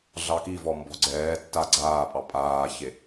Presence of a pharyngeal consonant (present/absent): absent